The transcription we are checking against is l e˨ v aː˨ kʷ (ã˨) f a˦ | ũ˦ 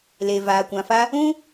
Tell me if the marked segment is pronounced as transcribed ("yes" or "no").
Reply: yes